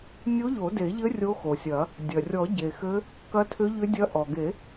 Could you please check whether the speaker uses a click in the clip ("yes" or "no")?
no